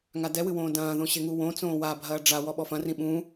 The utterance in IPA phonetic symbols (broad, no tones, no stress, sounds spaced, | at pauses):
ŋ a d ɛ w ɨ w õː d ɐ̃ː ð õ ɕ e ŋ u w õ t͡s õː w a bʱ ɐː ɖ͡ʐ a w ɔ ɓ ɔ f ɐ̃ r ĩ ɓ ũ